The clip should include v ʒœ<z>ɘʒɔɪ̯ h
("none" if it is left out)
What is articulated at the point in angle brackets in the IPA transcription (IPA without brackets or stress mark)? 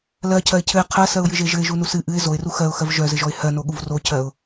z